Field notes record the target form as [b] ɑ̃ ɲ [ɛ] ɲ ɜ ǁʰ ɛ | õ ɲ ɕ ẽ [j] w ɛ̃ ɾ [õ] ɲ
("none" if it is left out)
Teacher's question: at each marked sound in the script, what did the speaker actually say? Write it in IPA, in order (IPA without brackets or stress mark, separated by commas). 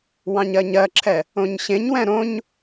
w, ɜ, ɲ, õ